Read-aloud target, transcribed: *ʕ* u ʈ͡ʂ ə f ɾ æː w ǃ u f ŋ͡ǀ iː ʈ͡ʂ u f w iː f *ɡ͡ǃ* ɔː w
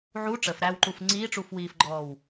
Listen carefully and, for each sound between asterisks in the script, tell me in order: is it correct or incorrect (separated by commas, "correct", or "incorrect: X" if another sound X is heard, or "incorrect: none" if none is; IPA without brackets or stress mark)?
correct, correct